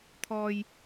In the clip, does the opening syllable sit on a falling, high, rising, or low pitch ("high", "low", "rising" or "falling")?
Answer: low